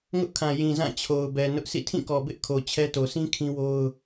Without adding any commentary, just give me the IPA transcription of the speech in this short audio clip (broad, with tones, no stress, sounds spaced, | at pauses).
ŋ ʊ˦ ʔ kʰ ã˨ j ĩ˨ z ã˦˨ t͡ɕʰ o˨ ʊ̯ b ɛ˨ n ʊ˦ ʔ s ḭ˦˨ tʰ ĩ˦˨ k ɔ˨ b ɪ˦ ʔ kʰ o˨ t͡ɕʰ ɛ˦ t o˨ s ĩ˦ kʰ ĩ˦ w o˦ ʊ̯